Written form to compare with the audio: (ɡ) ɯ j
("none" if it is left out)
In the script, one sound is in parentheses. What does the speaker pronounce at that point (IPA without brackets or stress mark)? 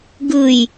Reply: ɡ